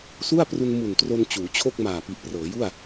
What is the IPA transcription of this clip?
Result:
s u˥˩ a̯ p r u˧ n m u˨˩ n t r o˧ n t͡ɕ uː˩˦ t͡ɕʰ o˥˩ k̚ m aː˨˩ p i˨˩ ʔ p r ɤː˩˦ j u˥˩ a̯

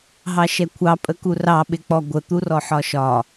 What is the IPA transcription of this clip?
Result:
ɦ ɑ ʃ ɛ kʷʰ ɑ pʼ ə k u r ɑ ɓ ɪ k͡p ɔ ɡʷ ə t̪ u r ɔ ħ ɒ ʃ ɒ

